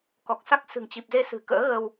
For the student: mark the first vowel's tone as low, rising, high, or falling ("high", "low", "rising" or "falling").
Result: low